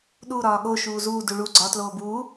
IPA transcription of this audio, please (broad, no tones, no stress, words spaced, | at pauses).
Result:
ɗu ɾɒːɠo ʃuːzuː duɭu ɡ͡ǀɒ tloːbuː